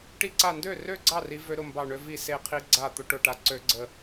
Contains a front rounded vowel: yes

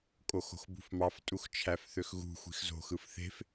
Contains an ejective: yes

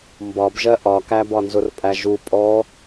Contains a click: no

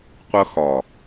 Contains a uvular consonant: yes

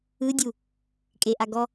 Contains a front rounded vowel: no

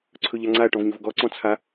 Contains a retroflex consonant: yes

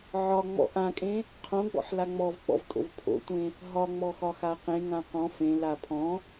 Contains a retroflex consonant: no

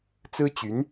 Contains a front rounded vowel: yes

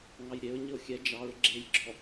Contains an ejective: no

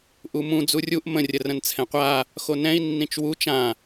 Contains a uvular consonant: yes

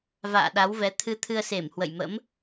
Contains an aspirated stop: yes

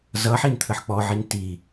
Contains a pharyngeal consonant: yes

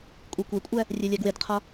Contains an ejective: yes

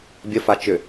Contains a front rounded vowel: yes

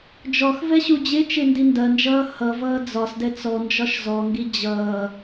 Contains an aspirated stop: no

